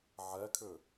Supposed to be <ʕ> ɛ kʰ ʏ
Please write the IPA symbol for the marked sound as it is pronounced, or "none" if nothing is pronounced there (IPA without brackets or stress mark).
ʕ